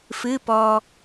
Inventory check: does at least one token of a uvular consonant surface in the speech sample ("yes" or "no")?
no